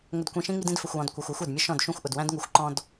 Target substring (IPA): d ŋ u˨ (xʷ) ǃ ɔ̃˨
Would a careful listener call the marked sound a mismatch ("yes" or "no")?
no